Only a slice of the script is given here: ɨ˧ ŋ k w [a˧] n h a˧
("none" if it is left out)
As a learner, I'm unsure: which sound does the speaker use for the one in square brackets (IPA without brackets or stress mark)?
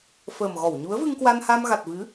a˧